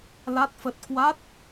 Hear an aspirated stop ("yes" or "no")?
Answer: no